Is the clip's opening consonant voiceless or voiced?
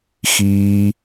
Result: voiceless